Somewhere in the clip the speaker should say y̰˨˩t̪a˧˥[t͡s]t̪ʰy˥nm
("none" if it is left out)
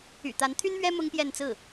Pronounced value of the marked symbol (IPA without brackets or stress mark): n